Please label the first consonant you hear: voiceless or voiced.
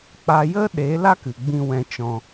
voiceless